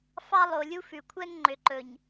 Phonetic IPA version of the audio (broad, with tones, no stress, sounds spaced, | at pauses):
f ɑ˦ lˠ o˨ lʲ u˦ f ʉ˨ kʷʰ ɛ˦ ŋ ŋ͡ǃ ø˨ ǃ ɵ˨ ɲ